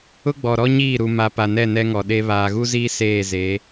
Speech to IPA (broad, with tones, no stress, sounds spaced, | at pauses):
ʊ˦ ɡ͡b ɔ˨ ɾ ɔ˦ ɲ iː˦˨ ɾ u˨ m a˨ p a˨ n ɛ˦˨ n ɛ˦ ŋ ɔ˨ ɗ e˦ β aː˨ ɣ u˦ z iː˦ s eː˦˨ z eː˨˦